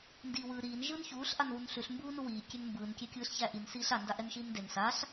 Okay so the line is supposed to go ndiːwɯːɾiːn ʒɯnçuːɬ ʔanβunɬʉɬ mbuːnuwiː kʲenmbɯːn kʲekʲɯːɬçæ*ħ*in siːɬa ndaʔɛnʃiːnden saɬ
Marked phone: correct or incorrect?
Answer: incorrect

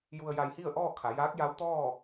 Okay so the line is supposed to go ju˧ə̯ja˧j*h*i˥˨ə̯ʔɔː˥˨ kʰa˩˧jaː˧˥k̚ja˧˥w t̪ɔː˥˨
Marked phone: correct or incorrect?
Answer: correct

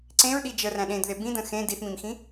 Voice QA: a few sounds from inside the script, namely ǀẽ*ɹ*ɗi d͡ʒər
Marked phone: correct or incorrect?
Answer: correct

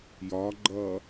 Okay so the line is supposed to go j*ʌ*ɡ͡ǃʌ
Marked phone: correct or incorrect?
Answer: incorrect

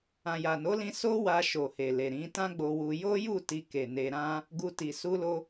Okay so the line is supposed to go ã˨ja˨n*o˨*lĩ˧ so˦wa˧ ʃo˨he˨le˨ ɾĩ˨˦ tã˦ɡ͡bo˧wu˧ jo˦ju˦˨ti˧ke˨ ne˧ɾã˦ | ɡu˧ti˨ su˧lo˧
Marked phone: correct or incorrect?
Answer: incorrect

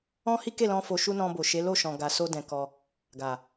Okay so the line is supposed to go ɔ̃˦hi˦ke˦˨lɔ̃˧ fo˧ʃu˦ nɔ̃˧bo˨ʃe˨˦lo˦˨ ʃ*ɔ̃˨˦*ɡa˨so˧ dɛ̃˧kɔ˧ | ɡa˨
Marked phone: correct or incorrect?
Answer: incorrect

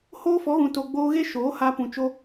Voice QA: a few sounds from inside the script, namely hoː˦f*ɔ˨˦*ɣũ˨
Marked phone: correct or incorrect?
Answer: correct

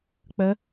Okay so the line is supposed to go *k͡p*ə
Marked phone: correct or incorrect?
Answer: correct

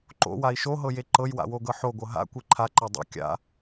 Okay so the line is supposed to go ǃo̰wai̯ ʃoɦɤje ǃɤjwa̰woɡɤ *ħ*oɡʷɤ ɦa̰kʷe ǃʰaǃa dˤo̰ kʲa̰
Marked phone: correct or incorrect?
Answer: correct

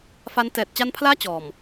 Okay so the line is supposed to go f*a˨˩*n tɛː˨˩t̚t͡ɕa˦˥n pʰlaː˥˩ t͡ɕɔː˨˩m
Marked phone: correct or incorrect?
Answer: incorrect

